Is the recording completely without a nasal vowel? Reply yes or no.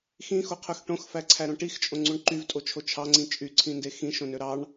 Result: no